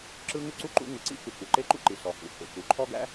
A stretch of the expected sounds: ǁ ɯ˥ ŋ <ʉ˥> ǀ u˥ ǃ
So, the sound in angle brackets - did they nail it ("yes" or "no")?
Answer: yes